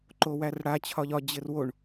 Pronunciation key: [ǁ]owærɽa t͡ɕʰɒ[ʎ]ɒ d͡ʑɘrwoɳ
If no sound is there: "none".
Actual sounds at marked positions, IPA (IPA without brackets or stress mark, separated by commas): ǃ, ʎ